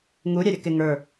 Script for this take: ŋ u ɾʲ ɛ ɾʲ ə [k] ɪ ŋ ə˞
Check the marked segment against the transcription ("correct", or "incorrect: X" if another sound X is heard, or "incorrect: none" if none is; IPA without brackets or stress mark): correct